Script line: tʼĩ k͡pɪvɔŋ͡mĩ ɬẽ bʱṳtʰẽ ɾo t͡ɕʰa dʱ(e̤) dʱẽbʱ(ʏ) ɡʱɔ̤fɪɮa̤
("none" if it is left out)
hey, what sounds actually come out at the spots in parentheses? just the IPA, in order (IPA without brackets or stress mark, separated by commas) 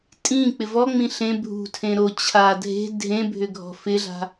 e̤, ʏ